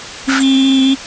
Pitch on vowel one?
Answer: high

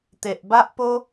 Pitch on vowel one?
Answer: low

